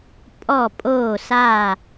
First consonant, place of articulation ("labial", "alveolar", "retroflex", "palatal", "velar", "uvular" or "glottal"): labial